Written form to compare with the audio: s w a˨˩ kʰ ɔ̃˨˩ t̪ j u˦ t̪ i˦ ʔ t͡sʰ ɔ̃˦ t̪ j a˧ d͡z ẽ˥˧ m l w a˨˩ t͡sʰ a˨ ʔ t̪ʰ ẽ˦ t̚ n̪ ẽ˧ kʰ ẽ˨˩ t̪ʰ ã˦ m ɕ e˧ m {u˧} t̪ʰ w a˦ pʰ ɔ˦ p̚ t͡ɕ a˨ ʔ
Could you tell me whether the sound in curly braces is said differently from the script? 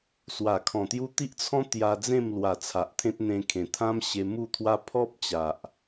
yes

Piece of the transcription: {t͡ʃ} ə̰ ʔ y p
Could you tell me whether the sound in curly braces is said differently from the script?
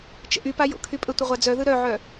no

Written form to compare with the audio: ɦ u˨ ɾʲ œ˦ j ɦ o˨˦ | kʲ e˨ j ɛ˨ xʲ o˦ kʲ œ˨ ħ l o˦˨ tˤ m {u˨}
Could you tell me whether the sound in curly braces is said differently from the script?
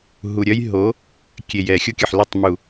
no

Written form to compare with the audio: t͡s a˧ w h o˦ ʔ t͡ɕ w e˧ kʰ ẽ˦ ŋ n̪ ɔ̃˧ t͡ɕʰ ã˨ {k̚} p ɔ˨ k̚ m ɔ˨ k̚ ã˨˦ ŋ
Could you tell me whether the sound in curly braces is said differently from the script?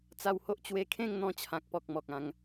no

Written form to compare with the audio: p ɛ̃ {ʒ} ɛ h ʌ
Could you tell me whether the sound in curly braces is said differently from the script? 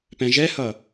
no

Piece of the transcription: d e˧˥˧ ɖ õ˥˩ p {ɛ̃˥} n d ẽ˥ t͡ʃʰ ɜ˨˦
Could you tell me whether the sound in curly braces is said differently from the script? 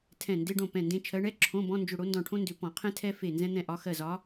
yes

